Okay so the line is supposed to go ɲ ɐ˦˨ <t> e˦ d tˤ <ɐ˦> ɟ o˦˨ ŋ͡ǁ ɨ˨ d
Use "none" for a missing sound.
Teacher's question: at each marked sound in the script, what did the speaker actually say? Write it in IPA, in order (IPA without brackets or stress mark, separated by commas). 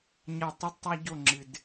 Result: tˤ, a˦